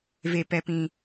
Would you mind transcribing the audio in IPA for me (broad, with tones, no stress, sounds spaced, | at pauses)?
v e˨ p ɛ˨ p ĩ˨